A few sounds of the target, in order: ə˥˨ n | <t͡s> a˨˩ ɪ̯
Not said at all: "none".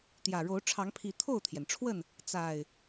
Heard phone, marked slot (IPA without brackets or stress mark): t͡s